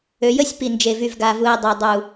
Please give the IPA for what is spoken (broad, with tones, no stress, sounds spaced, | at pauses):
ø˧ j ə˦ sʲ p i˨ n d͡ʒ e˨ v y˨ v ɡ a˨ v u˨ ɪ̯ dˤ e˨ dˤ u˨